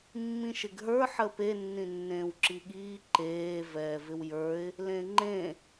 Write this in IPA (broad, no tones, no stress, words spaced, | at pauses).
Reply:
mːĩʃɪɡɦə˞ ħəpe nːĩnːẽːwǁiɠiː ǃeː vɛːvɪwjə˞ɪ̯ | lẽŋ͡ǃẽ